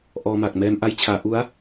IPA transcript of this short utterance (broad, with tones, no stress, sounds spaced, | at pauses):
ʔ ɔː˧ m a˨˩ k̚ m ɛː˧ m ʔ a˧ j t͡ɕʰ aː˩˦ ʔ u˦˥ a̯